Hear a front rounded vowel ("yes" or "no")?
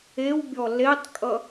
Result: no